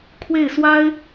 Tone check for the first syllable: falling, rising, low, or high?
falling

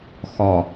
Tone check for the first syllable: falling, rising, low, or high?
low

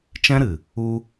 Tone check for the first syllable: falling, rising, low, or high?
high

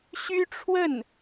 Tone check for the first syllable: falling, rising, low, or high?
high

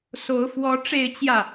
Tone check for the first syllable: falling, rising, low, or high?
rising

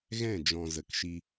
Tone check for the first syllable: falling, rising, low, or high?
falling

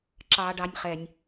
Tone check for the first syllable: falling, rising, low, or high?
high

